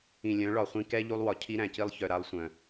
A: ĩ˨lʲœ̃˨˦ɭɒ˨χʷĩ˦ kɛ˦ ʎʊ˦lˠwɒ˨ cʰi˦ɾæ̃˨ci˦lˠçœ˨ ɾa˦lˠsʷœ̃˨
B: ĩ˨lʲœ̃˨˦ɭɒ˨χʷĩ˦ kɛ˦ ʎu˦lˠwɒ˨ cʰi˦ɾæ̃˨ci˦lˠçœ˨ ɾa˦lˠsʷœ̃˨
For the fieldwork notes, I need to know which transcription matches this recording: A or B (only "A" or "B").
B